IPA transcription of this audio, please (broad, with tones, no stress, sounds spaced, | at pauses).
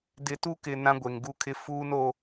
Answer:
d ɪ˨ t u˦ k ɪ˨ n ã˦ ɡʷ e˨ ŋ ɡ u˦ kʰ ɪ˦ f uː˦ n o˦